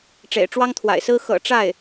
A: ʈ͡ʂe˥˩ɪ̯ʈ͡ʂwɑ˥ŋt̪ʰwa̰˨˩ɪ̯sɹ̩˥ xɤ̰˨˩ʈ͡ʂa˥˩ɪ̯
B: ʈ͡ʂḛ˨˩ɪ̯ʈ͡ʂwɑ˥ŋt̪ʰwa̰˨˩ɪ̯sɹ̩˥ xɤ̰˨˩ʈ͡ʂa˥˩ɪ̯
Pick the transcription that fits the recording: B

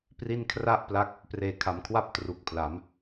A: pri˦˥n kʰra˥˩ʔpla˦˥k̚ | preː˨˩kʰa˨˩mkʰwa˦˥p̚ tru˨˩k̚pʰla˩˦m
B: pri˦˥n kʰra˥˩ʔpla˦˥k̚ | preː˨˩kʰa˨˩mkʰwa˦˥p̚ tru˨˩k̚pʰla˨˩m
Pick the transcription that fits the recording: A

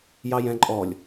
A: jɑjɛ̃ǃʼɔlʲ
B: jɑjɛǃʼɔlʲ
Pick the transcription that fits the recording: A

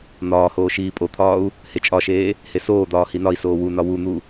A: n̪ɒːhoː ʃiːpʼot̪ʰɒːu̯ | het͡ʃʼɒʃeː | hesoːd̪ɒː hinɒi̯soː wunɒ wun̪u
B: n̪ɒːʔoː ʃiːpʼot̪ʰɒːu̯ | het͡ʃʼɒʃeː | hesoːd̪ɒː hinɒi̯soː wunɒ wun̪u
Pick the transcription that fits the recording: A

